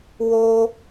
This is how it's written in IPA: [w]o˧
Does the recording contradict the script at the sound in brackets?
no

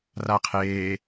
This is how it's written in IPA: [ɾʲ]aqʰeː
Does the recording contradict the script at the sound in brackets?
yes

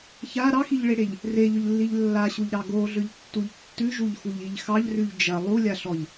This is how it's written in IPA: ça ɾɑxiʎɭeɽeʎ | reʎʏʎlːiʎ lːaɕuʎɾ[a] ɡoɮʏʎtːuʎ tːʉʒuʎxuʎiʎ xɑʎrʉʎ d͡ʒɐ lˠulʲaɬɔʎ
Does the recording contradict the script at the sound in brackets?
yes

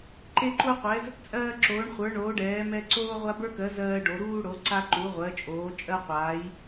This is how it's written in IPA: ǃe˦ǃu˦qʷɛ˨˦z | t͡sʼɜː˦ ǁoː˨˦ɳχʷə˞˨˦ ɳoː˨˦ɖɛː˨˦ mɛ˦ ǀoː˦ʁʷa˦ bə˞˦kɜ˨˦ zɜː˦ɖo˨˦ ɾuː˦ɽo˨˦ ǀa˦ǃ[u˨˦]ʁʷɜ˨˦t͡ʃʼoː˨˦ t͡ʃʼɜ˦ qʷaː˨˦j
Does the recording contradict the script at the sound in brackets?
no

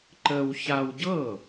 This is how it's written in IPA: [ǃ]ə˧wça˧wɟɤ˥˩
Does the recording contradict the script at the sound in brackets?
no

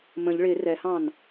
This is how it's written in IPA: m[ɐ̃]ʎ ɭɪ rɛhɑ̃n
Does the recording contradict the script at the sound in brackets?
yes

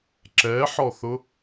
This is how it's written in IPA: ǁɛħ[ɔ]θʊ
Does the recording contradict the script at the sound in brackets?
no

